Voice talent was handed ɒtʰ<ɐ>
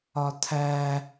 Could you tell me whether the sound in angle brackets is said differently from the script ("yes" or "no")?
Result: yes